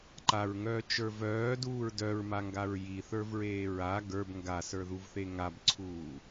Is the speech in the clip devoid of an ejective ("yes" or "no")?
yes